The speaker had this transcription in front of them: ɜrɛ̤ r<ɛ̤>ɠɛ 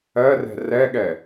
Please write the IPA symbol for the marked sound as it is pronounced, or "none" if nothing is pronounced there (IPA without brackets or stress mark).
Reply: ɛ